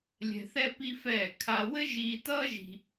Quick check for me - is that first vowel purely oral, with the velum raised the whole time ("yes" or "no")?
yes